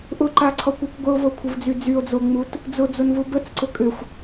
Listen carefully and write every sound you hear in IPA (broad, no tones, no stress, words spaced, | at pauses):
ʔʊǃaǀʰɔkʷœkʷ ɡʷəo̯vokʷʰəvd͡zy d͡zyo̯d͡zoŋ͡mut | d͡zʊd͡zʊnvu bət͡sǀʊ kʼʏxʷ